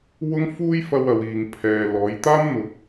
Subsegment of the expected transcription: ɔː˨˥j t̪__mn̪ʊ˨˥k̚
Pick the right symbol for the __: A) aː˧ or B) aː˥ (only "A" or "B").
B